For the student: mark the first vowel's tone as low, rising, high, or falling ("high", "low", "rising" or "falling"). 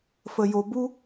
low